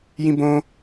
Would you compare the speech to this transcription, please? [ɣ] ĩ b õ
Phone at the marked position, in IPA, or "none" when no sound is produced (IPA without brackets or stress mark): j